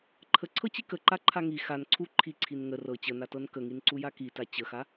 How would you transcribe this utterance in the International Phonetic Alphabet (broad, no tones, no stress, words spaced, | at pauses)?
ǃʰəǀʰɤt͡ɕi kəǃaǃʰa ŋi xan ǀʰu ǃʰiǀʰin ŋə rɤ t͡ɕənatɤn kəŋinǀuja kita t͡ɕəxa